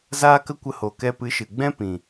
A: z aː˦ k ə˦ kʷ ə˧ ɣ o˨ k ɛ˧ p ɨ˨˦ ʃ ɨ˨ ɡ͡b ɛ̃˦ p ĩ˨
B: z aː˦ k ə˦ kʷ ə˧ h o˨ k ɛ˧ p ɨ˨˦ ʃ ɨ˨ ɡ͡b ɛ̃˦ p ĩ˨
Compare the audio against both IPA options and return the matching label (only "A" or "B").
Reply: B